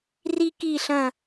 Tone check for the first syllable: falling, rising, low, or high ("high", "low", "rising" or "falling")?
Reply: high